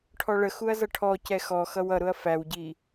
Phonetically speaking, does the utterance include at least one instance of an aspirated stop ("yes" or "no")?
yes